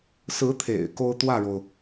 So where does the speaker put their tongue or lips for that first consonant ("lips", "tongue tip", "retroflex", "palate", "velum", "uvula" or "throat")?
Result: tongue tip